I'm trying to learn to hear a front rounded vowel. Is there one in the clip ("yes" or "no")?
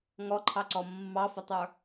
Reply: no